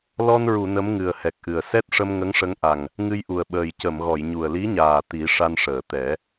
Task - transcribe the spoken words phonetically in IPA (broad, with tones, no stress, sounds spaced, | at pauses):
l ɔ˧ n ɹ u˨˩˨ n ə˧˥ m ŋ ɨ˨˩ ə̯ h ɛ˨˩ k̚ ʔ ɨ˨˩ ə̯ s ɛ˦˥ t̚ ʂ ə˧ m ŋ ə˧˥ ŋ ʂ ə˧˥ ŋ ʔ a˨˩ ŋ | ŋ ɨ˧ j ʔ u˨˩ ə̯ ɓ əː˨˩ j c ə˨˩˨ m ɣ ɔ˨˩˨ j ɲ u˨˩ ə̯ l i˧˥ ɲ aː˨˩ t̪ i˨˩˦ ʂ a˧ n ʂ əː˨˩˨ t̪ ɛ˨˩˦